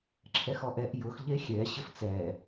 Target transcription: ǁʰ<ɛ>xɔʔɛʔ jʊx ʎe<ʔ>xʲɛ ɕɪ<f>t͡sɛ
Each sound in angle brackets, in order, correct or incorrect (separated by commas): correct, incorrect, correct